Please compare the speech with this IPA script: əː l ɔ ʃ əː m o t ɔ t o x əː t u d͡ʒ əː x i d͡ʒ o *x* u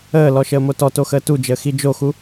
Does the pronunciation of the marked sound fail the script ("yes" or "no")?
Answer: no